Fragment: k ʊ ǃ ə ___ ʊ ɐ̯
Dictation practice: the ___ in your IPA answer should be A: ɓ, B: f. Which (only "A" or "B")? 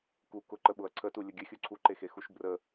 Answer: A